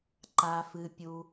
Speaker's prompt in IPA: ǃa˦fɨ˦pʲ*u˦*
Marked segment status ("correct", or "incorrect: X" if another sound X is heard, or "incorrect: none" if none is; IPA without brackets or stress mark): correct